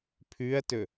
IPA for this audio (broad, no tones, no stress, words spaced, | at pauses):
pʰʉɐ̯tɵ